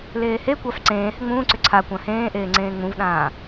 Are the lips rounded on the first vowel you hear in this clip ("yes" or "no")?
no